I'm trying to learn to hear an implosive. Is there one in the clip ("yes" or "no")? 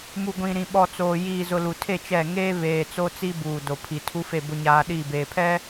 yes